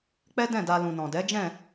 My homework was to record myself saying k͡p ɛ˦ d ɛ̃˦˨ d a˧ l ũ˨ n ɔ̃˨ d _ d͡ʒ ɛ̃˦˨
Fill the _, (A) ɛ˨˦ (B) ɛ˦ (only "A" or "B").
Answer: A